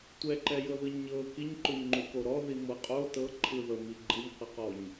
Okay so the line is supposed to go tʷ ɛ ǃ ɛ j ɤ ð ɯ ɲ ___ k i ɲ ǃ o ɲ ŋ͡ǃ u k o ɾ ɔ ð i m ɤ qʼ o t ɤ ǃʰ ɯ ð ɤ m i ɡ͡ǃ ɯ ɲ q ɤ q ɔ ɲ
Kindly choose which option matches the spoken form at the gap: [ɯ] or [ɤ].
ɤ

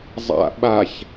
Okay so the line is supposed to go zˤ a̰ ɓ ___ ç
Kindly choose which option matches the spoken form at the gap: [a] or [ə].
a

